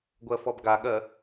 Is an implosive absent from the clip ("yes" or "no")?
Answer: no